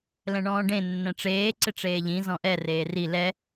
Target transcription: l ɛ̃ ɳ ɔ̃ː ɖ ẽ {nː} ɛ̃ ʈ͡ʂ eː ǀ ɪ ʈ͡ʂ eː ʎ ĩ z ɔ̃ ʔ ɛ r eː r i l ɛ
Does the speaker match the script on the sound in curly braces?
yes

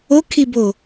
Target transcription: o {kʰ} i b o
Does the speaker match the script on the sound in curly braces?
yes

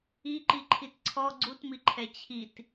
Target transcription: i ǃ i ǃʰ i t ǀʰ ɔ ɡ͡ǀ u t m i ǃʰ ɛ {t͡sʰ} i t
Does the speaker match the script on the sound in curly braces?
no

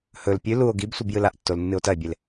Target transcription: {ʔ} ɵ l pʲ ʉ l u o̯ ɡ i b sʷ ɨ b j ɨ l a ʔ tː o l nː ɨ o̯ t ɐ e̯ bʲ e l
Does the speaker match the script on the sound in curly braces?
no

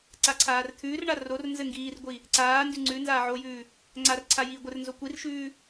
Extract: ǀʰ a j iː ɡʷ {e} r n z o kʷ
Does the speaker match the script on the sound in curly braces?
no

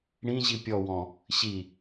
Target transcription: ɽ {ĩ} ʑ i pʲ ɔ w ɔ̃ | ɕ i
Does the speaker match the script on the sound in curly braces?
yes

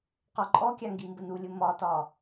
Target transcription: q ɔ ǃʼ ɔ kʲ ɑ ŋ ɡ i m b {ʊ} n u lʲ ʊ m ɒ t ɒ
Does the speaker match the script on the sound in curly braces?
no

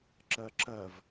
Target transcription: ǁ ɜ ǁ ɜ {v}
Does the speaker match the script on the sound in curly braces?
yes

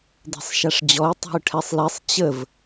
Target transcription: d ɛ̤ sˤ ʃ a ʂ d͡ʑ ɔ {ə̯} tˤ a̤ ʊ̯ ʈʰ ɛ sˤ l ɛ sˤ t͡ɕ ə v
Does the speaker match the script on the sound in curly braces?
no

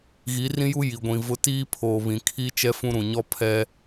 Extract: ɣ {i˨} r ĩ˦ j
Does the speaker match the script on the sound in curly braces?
no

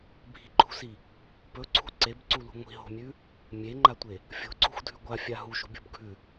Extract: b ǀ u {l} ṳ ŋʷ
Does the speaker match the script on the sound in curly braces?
yes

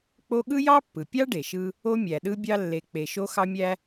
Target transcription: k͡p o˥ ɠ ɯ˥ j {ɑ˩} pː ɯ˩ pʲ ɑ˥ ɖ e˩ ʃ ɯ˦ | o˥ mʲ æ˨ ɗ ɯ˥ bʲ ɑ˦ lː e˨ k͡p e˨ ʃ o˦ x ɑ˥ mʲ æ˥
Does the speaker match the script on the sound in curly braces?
no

